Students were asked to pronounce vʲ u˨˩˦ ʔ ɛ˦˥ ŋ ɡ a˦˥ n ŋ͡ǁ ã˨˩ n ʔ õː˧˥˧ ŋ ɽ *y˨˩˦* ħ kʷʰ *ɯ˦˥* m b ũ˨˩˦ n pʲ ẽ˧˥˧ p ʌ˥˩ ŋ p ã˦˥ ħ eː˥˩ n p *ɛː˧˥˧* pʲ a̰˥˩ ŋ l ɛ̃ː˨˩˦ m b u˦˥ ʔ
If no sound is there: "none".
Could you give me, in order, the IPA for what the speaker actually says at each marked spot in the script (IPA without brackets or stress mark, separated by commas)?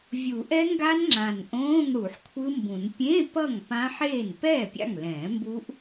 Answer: u˨˩˦, ɯ˦˥, ɛː˥˩